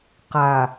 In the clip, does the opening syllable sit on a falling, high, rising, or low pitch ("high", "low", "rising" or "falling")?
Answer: low